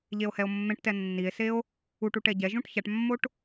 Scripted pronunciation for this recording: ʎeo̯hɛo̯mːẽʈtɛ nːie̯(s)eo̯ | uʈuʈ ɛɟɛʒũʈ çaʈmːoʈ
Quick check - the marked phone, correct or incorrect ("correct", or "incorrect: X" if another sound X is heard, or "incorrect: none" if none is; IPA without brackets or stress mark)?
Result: correct